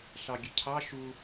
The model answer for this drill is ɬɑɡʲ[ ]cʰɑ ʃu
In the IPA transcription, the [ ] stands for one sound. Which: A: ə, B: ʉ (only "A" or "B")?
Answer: A